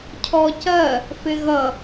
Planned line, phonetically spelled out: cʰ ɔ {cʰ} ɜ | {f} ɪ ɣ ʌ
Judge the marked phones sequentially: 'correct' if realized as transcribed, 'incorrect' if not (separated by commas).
incorrect, correct